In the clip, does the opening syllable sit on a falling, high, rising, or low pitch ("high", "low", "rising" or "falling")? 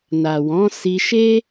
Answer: low